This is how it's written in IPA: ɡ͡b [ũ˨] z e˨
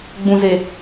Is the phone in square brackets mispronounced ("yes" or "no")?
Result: no